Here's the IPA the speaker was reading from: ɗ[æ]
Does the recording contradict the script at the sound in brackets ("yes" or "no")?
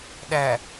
no